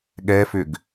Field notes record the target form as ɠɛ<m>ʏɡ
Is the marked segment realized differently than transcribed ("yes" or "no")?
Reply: yes